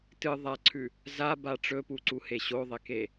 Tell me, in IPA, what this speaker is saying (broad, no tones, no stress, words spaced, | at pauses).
tɨ ðˤaǀʰʉ | zaba ʈ͡ʂɵpuǀuhe ɕoðˤeke